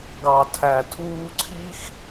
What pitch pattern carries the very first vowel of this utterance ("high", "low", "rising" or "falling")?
low